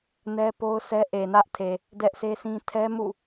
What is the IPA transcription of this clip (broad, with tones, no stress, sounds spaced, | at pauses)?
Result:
n ɛ˦ p o˦ ʊ̯ sʰ ɛ˦ ʔ e˨ n ä˦ ʔ tʰ e˨ | d ɛ˦ ʔ sʰ e˦ sʰ ĩ˦ tʰ ɛ˦ m ṵ˦˨